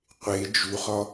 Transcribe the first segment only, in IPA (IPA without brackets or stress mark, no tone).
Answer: qʷ